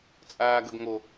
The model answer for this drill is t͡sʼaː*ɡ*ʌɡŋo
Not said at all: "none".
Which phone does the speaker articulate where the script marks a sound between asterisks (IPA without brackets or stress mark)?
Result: ɡ